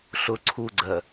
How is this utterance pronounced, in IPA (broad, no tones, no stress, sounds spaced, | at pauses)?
ɬ ʊ ǀʰ u ɡ͡ǀ ɜ